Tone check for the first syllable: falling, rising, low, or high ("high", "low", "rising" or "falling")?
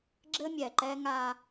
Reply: high